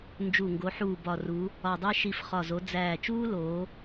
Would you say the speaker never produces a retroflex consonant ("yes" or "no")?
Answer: yes